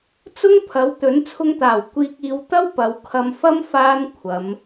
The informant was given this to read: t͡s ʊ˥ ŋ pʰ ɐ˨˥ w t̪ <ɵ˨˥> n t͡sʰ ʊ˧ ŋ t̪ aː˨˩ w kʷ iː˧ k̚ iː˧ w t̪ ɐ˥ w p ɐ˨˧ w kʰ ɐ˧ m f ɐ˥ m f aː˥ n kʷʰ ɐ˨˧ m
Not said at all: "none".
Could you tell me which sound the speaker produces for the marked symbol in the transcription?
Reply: ɵ˨˥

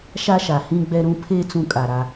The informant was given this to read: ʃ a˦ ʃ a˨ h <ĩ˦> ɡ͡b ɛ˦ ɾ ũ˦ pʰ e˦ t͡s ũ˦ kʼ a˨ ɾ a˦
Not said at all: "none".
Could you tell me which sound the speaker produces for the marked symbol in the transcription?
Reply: ĩ˦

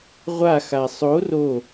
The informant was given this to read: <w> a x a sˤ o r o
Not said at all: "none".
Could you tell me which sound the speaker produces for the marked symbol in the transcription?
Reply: ʁʷ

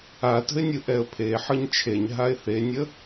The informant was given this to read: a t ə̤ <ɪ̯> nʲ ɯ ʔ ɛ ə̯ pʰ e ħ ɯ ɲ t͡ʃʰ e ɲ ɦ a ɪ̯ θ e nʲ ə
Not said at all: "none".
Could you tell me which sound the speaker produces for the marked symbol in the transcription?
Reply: ɪ̯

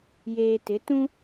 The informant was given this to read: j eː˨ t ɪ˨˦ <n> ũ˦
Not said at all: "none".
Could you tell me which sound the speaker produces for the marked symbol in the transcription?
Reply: t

